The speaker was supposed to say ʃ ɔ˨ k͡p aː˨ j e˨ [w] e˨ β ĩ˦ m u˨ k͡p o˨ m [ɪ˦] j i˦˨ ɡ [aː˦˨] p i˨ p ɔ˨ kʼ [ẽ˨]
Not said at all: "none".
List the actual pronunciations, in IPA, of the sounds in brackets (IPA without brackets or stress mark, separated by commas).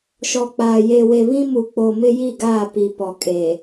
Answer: w, ɪ˦, aː˦˨, e˨